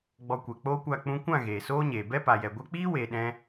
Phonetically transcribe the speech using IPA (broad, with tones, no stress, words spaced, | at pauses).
ɡ͡bɔ˧kʷɛ˨k͡poː˦kʷa˦˨ k͡pũ˧kʷã˦˨ ɣeː˨soː˦ɲeː˨ bɛ˦pa˨jɛ˨ ɡʷɛ˧k͡piː˦ weː˨ɗɛ̃˧